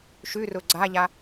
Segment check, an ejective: absent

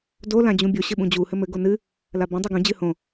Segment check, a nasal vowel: present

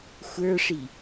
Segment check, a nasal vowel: absent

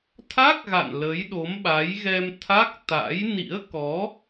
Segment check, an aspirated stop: present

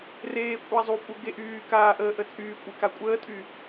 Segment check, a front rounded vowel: present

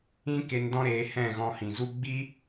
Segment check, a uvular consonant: absent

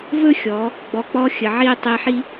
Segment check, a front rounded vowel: absent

